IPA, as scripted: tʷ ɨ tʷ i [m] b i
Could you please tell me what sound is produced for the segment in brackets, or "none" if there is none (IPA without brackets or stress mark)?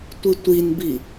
n